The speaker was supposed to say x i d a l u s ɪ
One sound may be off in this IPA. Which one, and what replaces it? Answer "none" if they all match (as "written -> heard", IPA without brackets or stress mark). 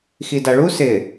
l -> ɭ